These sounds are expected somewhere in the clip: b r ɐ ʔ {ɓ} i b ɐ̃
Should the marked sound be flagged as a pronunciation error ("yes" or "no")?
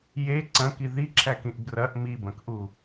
yes